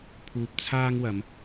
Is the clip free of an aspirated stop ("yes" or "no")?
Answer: no